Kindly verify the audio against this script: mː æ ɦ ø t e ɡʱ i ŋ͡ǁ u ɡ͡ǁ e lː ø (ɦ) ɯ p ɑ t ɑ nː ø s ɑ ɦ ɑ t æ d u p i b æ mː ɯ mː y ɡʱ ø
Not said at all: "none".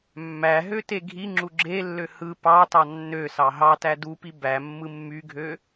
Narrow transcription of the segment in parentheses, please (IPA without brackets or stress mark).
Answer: h